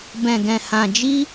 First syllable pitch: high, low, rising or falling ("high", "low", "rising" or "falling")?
low